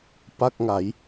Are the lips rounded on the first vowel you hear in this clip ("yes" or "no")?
no